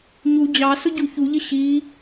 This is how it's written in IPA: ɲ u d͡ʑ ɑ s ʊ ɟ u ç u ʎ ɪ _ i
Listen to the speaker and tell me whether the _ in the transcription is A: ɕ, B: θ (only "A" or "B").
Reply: A